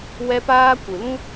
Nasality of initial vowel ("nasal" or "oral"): oral